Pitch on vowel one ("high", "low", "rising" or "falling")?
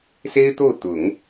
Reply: high